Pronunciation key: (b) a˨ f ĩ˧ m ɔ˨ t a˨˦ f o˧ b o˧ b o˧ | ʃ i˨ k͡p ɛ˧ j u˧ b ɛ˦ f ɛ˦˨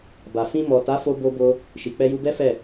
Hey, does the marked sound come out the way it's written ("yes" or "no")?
yes